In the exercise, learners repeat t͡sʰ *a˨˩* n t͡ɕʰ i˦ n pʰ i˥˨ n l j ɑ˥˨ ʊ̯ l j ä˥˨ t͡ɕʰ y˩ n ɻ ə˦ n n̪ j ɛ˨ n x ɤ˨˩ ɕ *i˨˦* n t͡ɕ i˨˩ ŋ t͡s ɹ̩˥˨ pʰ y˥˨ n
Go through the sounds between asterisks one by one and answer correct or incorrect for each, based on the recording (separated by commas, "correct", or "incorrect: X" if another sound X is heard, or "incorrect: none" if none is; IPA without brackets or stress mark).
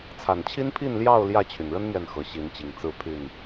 correct, correct